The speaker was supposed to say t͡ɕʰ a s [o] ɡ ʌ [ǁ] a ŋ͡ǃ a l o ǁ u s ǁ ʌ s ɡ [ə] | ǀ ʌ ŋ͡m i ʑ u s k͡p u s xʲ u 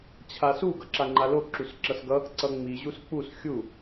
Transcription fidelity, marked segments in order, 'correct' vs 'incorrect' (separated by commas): incorrect, correct, incorrect